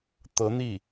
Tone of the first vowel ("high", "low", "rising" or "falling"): rising